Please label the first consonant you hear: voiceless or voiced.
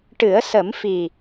voiceless